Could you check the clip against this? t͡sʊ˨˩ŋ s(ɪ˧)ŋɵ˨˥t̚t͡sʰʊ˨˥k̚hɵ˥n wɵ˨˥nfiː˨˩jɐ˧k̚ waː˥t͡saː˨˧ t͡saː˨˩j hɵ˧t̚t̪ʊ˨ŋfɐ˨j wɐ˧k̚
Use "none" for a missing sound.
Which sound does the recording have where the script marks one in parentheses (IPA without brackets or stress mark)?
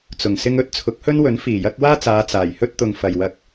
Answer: ɪ˧